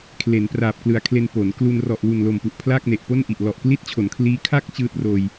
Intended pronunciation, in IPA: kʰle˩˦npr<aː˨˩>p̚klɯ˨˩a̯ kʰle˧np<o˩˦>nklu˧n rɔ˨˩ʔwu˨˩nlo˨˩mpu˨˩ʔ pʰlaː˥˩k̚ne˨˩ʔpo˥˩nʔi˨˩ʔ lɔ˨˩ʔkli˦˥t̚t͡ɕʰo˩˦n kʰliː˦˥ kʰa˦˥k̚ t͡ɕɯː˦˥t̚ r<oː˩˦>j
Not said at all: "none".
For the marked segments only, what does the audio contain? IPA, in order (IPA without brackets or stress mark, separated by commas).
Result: aː˨˩, o˩˦, oː˧